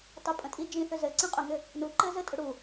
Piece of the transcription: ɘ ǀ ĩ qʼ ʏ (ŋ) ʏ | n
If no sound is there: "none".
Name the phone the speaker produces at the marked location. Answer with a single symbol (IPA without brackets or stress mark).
ŋ